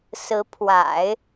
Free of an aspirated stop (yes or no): no